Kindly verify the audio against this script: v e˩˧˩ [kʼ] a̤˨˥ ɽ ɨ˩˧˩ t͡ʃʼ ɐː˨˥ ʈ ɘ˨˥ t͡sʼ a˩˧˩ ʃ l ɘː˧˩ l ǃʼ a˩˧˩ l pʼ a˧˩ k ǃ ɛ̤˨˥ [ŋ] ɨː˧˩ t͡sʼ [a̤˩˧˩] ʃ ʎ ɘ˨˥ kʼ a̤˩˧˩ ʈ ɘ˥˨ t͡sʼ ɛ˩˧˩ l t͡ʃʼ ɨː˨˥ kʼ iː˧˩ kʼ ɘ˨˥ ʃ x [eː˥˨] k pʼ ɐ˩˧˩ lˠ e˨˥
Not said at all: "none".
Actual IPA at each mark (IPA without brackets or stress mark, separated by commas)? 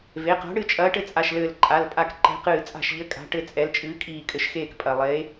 q, q, a̤˧˩, eː˥˨